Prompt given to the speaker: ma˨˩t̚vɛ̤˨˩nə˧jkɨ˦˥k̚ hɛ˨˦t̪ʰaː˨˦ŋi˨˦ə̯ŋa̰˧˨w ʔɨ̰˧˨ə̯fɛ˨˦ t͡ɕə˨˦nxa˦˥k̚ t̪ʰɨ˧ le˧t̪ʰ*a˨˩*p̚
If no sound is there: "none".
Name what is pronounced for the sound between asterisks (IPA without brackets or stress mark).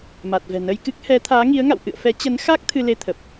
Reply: ə˨˩